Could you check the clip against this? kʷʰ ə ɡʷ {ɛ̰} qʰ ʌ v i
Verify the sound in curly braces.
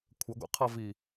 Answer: correct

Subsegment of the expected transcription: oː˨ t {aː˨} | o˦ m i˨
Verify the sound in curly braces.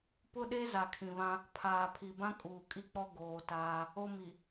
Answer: incorrect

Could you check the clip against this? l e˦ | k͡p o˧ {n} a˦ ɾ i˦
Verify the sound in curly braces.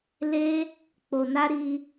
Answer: correct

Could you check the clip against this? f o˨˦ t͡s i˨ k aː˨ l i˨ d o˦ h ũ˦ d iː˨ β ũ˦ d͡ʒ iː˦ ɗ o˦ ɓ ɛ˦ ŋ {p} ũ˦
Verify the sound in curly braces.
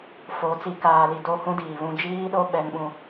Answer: incorrect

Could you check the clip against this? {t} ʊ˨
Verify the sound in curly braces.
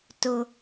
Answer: correct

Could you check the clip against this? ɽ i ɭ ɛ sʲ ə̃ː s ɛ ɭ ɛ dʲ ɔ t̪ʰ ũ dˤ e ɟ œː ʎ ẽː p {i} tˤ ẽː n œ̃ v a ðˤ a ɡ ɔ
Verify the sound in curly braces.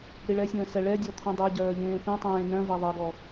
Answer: incorrect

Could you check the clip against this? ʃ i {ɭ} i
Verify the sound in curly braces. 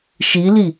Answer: incorrect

